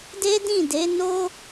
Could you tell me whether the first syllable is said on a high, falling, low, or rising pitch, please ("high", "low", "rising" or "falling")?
high